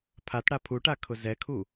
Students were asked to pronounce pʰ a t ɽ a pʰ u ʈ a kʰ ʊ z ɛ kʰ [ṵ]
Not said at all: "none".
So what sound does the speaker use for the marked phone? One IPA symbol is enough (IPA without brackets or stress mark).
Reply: u